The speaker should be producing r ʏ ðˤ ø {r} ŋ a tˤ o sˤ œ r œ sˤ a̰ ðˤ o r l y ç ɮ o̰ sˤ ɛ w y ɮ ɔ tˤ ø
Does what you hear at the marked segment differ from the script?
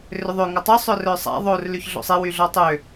yes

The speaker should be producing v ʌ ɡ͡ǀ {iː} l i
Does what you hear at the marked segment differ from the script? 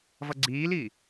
no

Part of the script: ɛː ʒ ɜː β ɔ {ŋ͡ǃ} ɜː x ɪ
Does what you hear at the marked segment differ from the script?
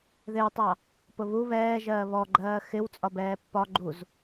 yes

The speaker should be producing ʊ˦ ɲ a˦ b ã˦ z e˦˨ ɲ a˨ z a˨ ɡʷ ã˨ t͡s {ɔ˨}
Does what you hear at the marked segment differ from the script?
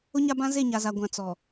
no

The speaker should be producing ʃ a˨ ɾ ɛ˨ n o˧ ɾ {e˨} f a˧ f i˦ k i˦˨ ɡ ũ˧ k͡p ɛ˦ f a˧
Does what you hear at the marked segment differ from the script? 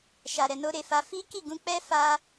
no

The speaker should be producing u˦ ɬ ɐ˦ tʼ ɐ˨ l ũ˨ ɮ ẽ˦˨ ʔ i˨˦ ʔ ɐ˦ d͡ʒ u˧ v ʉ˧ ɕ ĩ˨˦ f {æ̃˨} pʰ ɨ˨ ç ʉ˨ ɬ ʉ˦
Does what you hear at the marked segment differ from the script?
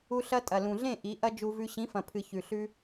yes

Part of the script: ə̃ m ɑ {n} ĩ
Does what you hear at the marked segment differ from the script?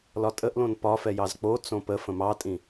yes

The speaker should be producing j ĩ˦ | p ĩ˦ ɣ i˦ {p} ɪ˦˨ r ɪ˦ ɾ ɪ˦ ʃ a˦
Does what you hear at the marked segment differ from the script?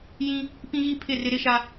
yes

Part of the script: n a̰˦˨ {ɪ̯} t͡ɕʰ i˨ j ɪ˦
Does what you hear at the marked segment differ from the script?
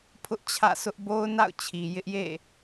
yes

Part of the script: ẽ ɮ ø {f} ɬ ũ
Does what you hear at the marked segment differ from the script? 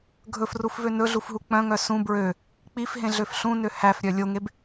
no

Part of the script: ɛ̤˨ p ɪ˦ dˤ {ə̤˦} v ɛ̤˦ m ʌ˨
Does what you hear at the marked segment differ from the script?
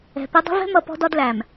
no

